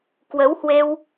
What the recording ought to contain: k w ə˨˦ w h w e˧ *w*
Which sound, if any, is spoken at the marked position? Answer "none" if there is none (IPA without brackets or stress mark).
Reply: w